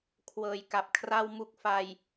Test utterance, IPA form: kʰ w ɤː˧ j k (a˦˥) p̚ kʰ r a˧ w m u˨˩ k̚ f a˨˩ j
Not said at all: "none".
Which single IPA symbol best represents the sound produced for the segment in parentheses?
a˨˩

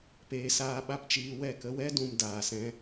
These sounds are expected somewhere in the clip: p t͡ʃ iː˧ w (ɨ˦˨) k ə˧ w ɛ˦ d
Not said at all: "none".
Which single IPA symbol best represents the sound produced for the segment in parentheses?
ɛ˦˨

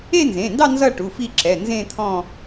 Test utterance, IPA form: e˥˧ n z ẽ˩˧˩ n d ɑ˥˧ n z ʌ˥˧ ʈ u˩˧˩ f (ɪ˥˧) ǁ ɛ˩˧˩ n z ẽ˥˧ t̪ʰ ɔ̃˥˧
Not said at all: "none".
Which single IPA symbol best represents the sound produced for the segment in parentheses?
i˥˧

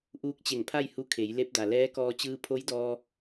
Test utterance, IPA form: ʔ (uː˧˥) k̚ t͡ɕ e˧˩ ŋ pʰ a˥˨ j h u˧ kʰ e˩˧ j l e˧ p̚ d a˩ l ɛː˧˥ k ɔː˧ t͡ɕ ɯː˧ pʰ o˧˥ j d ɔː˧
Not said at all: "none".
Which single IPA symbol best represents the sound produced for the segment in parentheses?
uː˧˥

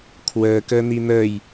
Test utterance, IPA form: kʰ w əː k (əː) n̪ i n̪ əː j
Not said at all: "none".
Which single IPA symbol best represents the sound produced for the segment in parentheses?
əː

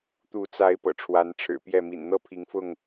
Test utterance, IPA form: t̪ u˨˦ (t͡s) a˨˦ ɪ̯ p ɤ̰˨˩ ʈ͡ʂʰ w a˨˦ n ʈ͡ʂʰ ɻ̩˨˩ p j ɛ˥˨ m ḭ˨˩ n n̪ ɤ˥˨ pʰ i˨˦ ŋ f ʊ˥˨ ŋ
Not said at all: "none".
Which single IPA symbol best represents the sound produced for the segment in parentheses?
t͡s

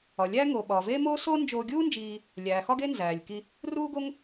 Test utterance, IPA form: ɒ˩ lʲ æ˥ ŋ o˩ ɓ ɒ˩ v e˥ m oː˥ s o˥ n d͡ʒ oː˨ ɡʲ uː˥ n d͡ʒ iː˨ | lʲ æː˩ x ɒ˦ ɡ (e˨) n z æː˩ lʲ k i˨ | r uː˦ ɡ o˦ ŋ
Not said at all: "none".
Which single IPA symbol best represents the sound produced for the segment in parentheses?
e˦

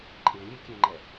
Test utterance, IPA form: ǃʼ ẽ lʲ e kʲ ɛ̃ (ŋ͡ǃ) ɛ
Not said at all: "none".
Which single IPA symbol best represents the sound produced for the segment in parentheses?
ŋ͡ǃ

